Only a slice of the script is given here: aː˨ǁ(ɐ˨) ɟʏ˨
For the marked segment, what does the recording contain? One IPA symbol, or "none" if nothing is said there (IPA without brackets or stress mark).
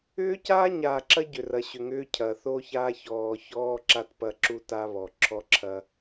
ɐ˦